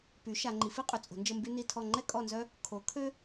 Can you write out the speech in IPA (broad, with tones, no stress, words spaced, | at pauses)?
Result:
py˩˥ ʃa˨ ŋ͡ǃi˨˩˦fi˦qʼø˨t͡sʼo̤˨˩˦ nd͡ʒə˦˨mby˦ni˦˨tʰɔ˦˨ ŋ͡ǃɛ˦kʼɔ˦˨nzœ˦ | kʰo˩˥kʰø˦